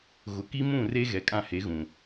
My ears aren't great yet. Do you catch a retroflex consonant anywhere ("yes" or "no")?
no